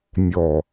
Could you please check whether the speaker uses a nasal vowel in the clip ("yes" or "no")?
no